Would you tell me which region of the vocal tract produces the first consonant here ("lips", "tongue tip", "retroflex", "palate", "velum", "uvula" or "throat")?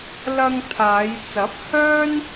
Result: tongue tip